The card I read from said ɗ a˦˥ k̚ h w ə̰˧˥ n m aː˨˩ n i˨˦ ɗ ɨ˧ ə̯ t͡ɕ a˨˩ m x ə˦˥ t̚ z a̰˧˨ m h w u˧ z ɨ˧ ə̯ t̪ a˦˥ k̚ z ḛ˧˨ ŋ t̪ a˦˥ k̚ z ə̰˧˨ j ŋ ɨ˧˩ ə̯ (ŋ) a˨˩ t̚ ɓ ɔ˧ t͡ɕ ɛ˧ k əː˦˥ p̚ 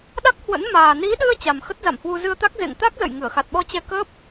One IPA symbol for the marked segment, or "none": x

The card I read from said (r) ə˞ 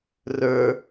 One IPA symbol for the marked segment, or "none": r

